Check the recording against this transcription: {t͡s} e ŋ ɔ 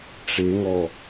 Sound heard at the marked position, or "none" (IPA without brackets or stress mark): ʈ͡ʂ